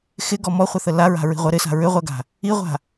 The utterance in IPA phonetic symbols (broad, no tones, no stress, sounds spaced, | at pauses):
x ɪ ɡ ɔ m ɔ χʷ ə θ ə l a ɹ a̤ ɹ i̤ ʁʷ ɜ ɾ ɪ s a̤ ɹ ʏ ʁʷ ɜ ɡ a̤ | i ʁʷ a̤